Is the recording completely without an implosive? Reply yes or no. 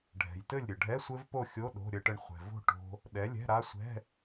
no